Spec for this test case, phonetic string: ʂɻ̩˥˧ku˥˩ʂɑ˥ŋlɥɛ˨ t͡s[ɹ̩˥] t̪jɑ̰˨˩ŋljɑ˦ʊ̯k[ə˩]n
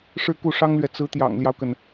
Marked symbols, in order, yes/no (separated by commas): no, yes